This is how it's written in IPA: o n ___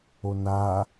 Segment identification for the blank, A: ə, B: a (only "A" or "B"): B